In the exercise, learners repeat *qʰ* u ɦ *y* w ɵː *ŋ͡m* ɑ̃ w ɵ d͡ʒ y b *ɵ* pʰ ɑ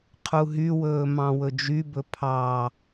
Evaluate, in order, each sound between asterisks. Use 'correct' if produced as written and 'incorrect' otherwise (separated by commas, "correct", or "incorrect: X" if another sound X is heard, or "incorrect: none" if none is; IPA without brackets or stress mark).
correct, correct, incorrect: m, correct